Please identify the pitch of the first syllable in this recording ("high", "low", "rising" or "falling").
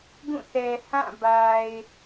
falling